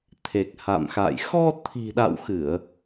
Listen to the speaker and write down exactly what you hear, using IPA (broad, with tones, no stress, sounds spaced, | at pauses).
t̪ʰ e˨˩ k̚ h a̰˧˨ m x a̰˧˨ j x ɔ˧ t̪ʰ i̤˨˩ ɗ a̰˧˨ w x ɨ˧˩˨ ə̯